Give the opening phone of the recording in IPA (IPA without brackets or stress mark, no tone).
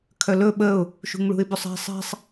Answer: kʰ